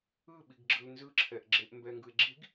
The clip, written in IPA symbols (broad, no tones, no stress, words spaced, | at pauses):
ɯɓiɡɡ͡ǁɯl nzɯ ǁʰɛʔɡ͡ǁeʔ mbɛŋɡɯe̯ɡ͡ǁiɡ